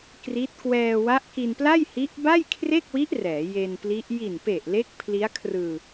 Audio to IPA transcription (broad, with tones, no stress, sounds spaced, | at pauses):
k r i˦˥ t̚ k w ɛː˧ w a˦˥ ʔ k i˧ n p l a˥˩ j h i˦˥ ʔ b a˥˩ j kʰ r e˥˩ k̚ w i˦˥ ʔ r ɛː˩˦ j e˧ n p l i˦˥ ʔ j i˨˩ n p e˨˩ ʔ l e˦˥ k̚ pʰ l i˦˥ a̯ kʰ r ɯː˧